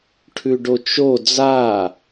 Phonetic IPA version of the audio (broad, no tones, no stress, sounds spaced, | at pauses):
ʈʰ ʉ ɖ o t͡ʃ o d͡z a